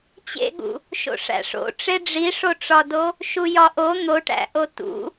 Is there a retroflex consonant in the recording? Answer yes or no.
yes